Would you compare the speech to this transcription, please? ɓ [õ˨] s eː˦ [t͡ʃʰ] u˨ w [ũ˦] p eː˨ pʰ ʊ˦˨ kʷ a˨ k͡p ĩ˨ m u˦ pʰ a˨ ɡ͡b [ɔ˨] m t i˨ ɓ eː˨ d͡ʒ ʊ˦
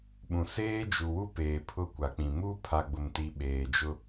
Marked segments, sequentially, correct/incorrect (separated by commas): incorrect, incorrect, incorrect, incorrect